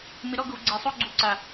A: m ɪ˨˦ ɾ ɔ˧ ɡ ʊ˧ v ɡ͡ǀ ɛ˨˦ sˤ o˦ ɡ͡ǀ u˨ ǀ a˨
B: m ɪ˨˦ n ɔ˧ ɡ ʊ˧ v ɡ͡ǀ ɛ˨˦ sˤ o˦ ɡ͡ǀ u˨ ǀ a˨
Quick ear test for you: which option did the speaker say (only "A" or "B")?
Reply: A